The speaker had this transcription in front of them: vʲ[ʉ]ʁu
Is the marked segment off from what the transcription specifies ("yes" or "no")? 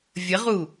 yes